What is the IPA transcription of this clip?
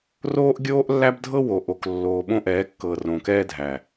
roː˦ʔɡʲoː˦ʔlːæ˦bdʱɤ˦ wo˨ʔo˨k lːoː˨ ɓõ˦ʔɛː˨˦kːɤː˨ rõ˨kɛː˦dʱæ˨

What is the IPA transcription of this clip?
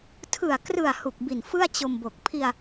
tʰɯ˨˩a̯krɯ˨˩a̯ hu˨˩k̚bi˨˩n fɯ˥˩a̯t͡ɕo˧mbo˨˩k̚ pʰi˧a̯

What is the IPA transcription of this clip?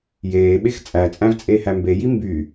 jeːɓex t͡sʼæt͡sʼæ̃vt͡sʼeːhæ mbeji mby

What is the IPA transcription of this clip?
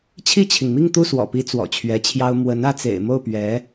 t͡ɕʰi˥˩t͡ɕʰi˩ŋmi˥˧ŋ t̪u˥˩swɔ̰˨˩pi˧˥ t͡swɔ̰˨˩t͡ɕʰɥɛ˧˥t͡ɕʰjɑ˥ʊ̯ mwə˧˥n ä˥˩t͡sḛ˨˩ɪ̯mo˥˩ʊ̯ pɥɛ˧˥

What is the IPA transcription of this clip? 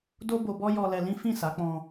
do˦bo˧bɔ˦ jɔ˧lɛ˧lĩ˦ fĩ˦˨sa˨˦k͡pɔ̃˧

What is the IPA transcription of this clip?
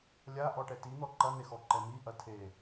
lʲaʔɔʈɛ tin̪ɔ ǃɐn̪exɔǃɛ miʔɐ tʰe

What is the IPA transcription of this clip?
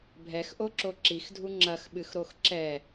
bʱɛxʔoǁo ǁixdʱu ŋ͡ǁɐxɓɨxɾox ǁɛ

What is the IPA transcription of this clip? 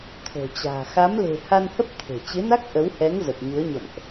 t̪ʰo̤˨˩t͡ɕa̤ː˨˩ xa˨˦mle̤˨˩ ha˧nhə˦˥p̚ t̪ʰe̤˨˩ t͡ɕɨ˨˦na˦˥k̚ ʔə˨˦whɛ˨˦ŋ zə˨˩p̚ɲu˨˦ə̯ɲə̰˧˨mʔ

